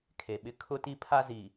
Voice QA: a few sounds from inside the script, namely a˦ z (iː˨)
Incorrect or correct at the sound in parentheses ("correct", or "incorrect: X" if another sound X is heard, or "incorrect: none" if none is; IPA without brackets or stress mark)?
correct